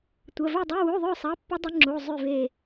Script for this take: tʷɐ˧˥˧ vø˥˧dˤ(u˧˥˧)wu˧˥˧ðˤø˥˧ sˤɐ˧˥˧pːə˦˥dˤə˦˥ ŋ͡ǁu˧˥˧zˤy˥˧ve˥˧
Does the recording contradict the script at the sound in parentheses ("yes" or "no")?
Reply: no